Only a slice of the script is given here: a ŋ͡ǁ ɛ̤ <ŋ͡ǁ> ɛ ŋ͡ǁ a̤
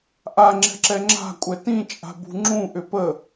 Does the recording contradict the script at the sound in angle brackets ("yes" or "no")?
yes